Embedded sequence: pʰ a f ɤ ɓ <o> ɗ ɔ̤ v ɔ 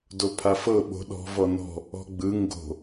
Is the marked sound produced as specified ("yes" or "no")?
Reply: no